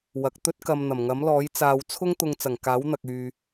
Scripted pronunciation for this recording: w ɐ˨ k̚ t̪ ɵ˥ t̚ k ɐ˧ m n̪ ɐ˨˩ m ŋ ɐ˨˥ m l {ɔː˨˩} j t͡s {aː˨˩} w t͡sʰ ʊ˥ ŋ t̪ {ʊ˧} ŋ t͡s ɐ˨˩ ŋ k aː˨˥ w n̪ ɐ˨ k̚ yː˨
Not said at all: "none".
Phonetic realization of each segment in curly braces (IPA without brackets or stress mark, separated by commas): ɔː˨˥, aː˧, ʊ˧